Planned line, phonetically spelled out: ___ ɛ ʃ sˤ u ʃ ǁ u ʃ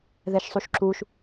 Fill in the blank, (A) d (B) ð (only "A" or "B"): B